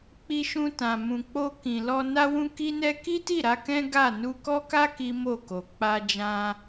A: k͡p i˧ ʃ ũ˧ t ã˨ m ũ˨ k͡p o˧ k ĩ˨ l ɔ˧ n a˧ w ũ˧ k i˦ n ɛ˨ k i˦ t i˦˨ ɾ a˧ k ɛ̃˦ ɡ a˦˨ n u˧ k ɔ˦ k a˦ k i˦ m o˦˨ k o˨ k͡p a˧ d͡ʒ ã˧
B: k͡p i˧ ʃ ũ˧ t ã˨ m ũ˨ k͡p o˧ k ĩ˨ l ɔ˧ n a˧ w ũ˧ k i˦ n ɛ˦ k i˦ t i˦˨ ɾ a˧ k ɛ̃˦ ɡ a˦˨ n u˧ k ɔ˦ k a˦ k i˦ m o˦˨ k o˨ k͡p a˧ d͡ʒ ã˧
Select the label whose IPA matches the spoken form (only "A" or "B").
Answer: B